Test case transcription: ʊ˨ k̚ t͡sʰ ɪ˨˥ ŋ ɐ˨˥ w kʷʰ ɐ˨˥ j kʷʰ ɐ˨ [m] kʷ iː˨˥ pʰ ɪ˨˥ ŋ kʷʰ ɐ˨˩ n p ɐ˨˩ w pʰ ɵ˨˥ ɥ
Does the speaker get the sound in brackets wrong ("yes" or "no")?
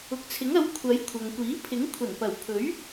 yes